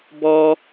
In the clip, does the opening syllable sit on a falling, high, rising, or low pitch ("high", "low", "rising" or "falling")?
high